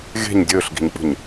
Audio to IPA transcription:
ɣe̤ɲ dʲɵːɬɡi̤ɲk͡pṳɲ

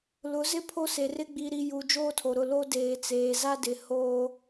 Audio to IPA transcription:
lʊ˨˦zɪ˦ pʰo˦se˨rɪ˦ ɡ͡bi˨ɾi˨ ju˨ d͡ʒoː˦tʰo˨ɾʊ˦˨ lo˦deː˨ t͡seː˨za˦dɪ˨ hoː˦

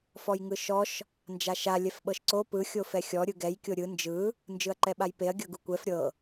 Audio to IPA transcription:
fɔjŋɯʃɔʃ | nd͡ʒaʃa lʲɛfɓɤʃǀo pɯ xʲofɛxʲɔ ɾʲɯɡɛj kʲoɾʲɯ nd͡ʒɯ | nd͡ʒɯɐ̯ǃɛɓajpeɐ̯ ɡʲɤɡukʷɛf ɾʲɤ

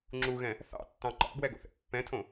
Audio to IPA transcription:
ŋ͡ǁuɣɛ̃ | θɑ̰tːɑ̃ ǃɑ̰bwɛɡo̰θɛ̰ pːɛ̃tʰõ

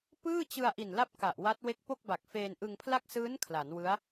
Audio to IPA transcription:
pɯː˥˩t͡ɕɯ˧a̯ ʔi˨˩nla˦˥p̚ ka˨˩ʔwa˦˥t̚ we˦˥k̚po˥˩k̚ba˨˩k̚feː˧n ʔɯ˧ŋpʰla˥˩k̚ sɯː˦˥n kʰla˩˦nwɯ˦˥a̯

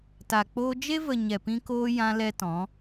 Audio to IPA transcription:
ta˨k͡poː˦ d͡ʒe˦və˨ ɲɛ˨pĩ˧koː˧ jã˦lɛ˦tɔ̃˨˦

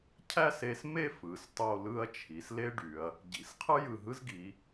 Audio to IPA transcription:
cʰæ˥˧se˧sme˥˧ fɯ˩˧stˤo˥˧lɯ˥ɐ̯ t͡ʃʰi˩˧sle˥ ɖy˩˧ɐ̯ | ɟḭ˩˧sqʰɯ˥ jɯ˧˩ɦɯ˥zɡi˩˧

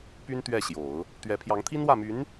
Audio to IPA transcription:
py˥nt̪ɥɛ˥˩ɕjo˨˩˦ʊ̯ | t̪ɥɛ˧˥ pʰjɑ˧˥ŋt̪ʰi˥nwä˥˩my˧˥n

